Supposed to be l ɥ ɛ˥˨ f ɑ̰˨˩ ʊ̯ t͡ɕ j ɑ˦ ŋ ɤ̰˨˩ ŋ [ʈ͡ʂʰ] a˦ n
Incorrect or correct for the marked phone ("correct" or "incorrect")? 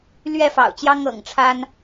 correct